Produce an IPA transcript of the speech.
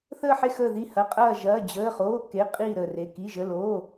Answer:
θ əː˥˧ ħ e˥˧ x əː˥˧ ð i˥˧ h ɐ˧˥˧ qʼ ɐː˥˧ ʒ ɐː˧˥˧ d͡ʑ əː˧˥˧ χ oː˧˥˧ k e˧˥˧ qʼ iː˥˧ ɾ ə˥˧ r e˧˥˧ k i˧˥˧ ʒ ə˧˥˧ l oː˧˥˧

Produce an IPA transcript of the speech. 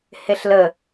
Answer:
h e ɬ l ə

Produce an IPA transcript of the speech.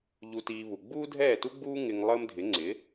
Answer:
ʎ u˧ t iː˧ β u˩ ɡ͡b uː˥ dʱ ɛː˥˩ t u˥ ɡ͡b uː˥ ŋ ɪ˧ ŋ lˠ əː˥ m dʱ ɪ˩˥ ŋ͡ǀ ɪ˩˥

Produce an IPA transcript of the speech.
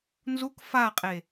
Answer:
n z u k f a qʼ e

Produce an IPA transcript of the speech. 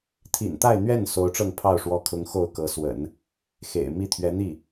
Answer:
t̪ʰ ḭ˨˩ n t̪ a˥˧ ɪ̯ n̪ ɥ ɛ˥˩ n s o˧˥ ʊ̯ ʈ͡ʂ ɤ˥˧ ŋ pʰ ɑ˥˩ ʊ̯ ʂ w ɔ˧˥ kʰ ʊ˧˥ ŋ x o˥˩ ʊ̯ k ɤ˧˥ s w ə̰˨˩˦ n | x ḛ˨˩ ɪ̯ m i˥˩ t̪ʰ ɥ ɛ˧˥ n̪ i˥˩

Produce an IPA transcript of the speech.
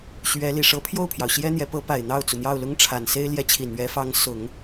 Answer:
ɕ ɥ ɛ˧˥ l i˨˩ ʂ ɤ˧˥ pʰ j o˥˩ ʊ̯ pʰ j ɑ˩ ʊ̯ ɕ j ɛ˥ n̪ j ɛ˧˥ p ɤ˧˥ p a˨˩ ɪ̯ n̪ ɑ˥˩ ʊ̯ t͡s u˩ n̪ j ɑ˥˩ ʊ̯ l ʊ˥ ŋ ʈ͡ʂʰ a˨˩ n s e˥ ɪ̯ l j ɛ˧˥ t͡ɕʰ i˨˩ n ɥ ɛ˧˥ f ɑ˧˥ ŋ s ʊ˨˩˦ ŋ

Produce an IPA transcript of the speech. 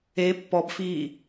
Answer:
e pː ɔ b f iː

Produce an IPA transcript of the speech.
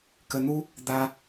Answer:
k ə˨ n̪ u˦ | d̪ a˨

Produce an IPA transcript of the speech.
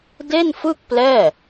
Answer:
d e˥˩ n f ɯ˥˩ k̚ p l ɛː˥˩

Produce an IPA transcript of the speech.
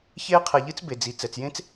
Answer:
ç eː˥ qʰ ɛ˨ ʎ ɨ˥ t͡s b e˩ d͡z i˩ t͡s ɛ˩ t͡s j ẽ˥ t͡s

